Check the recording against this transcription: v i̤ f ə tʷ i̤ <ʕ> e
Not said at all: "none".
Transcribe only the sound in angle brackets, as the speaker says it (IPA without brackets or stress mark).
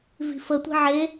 ʕ